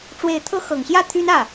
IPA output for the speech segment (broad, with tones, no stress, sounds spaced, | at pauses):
ʈ͡ʂ w e˧˥ ɪ̯ t̪ʰ ɤ˥ x ɤ˨˩ ŋ ɕ j ä˥˩ t̪ʰ y˥ n ä˥˩